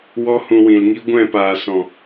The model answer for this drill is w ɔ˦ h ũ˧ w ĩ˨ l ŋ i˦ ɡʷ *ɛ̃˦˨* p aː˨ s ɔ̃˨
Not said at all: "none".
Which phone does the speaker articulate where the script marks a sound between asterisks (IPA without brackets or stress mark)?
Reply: ɛ̃˦˨